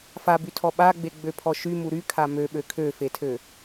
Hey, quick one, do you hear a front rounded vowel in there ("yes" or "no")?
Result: yes